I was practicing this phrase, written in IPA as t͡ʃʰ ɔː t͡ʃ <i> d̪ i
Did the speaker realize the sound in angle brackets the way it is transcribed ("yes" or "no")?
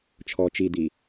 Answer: yes